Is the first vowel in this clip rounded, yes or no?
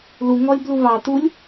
yes